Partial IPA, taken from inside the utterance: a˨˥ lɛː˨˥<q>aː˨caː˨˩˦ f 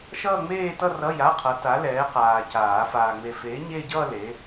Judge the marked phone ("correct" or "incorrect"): correct